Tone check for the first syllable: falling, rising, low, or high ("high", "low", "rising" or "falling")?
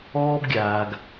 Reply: high